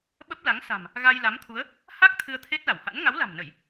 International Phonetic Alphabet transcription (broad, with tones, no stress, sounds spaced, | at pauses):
ɓ ə˦˥ p̚ l a˨˦ ŋ s a̤˨˩ m | ɣ a˧ j l a˨˦ m t̪ʰ u˨˦ ə̯ | h a˦˥ k̚ t̪ʰ ɨ˧ ə̯ t̪ʰ e˦˥ t̚ l a˧˩ w h a̰˧˥ n ŋ a˨˦ w l a̤˨˩ m n ə˧˩˨ j